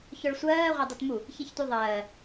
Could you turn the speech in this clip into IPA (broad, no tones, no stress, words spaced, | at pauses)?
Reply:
çœɭsʷɜː ʁʷadˤutmu | çiçtʷɨðˤɜː